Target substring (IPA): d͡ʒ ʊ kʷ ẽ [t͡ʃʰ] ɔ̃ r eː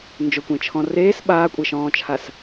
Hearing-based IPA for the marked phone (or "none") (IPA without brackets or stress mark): t͡ʃʰ